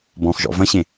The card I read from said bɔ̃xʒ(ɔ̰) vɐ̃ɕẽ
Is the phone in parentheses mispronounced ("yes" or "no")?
no